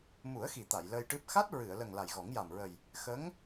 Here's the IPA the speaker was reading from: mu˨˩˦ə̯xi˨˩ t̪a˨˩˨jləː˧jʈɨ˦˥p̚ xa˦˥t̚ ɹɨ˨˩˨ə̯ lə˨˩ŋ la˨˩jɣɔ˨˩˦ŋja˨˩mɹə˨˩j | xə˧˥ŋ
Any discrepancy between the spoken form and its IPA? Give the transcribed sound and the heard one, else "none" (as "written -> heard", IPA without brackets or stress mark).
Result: none